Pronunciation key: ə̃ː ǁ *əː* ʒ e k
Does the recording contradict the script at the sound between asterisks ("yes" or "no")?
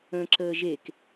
no